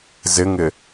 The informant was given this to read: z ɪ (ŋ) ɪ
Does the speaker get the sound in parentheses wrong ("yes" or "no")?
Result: no